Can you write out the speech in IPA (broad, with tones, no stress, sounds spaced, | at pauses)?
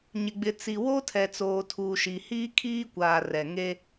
ɲ ɪ˨ ɡ͡b ɪ˨ t͡s i˨ w o˦ tʰ ɛ˨ t͡s oː˨ tʰ uː˨ ʃ i˨ h iː˦ kʰ iː˦ kʷ aː˨ r ɛ˨ ŋ e˦